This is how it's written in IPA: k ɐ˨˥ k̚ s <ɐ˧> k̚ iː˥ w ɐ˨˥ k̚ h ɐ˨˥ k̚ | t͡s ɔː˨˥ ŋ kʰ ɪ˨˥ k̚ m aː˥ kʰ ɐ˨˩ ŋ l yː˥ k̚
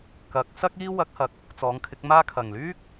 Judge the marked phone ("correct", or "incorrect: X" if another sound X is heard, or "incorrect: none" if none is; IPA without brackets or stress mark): incorrect: ɐ˥